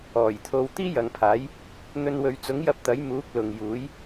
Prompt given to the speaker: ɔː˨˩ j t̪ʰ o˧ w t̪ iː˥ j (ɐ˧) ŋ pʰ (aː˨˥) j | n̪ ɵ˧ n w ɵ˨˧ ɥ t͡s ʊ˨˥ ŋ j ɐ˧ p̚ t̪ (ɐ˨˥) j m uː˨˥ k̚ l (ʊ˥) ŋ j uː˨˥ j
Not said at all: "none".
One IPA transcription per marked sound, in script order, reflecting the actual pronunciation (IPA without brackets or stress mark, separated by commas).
ɐ˨, aː˨˥, ɐ˨˥, ʊ˨